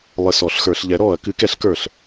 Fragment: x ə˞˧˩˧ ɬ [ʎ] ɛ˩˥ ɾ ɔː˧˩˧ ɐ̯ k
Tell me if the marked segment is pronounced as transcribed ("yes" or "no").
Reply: yes